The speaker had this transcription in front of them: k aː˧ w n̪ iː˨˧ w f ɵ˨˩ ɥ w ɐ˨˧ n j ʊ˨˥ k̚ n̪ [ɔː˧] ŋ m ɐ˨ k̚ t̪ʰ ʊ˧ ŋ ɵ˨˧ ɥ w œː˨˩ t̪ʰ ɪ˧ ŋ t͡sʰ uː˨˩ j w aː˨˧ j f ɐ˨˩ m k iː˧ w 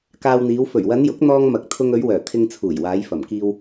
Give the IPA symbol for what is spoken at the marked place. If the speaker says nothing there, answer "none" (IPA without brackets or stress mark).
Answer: ɔː˧